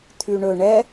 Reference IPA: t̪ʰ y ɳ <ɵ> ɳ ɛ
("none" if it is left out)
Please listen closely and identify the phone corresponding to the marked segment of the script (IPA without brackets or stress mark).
ɵ